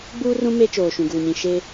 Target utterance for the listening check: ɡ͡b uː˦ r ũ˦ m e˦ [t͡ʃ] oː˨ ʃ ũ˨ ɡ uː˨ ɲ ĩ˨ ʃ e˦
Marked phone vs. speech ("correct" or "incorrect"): correct